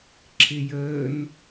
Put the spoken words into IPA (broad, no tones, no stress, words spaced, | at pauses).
ǁʰɪjəːn